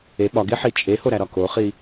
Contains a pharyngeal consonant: yes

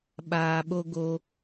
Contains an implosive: yes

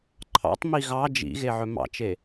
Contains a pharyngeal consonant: yes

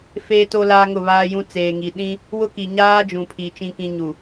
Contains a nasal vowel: yes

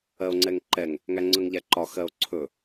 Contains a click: yes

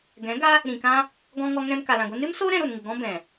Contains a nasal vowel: yes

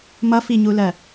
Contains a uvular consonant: no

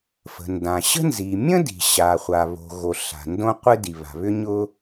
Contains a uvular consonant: yes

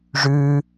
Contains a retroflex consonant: yes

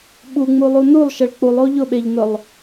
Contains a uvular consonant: no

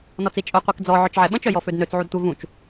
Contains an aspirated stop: no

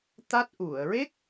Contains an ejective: no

